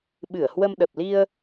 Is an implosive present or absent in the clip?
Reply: present